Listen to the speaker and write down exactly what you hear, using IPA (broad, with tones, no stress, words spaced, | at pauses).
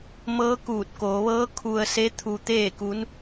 mɤː˧˥kuː˧˩t̚koː˩˧ʋɤː˧˥ kʰu˧ə̯se˧˥ t̪ʰu˧t̪eː˥˨ku˧˥n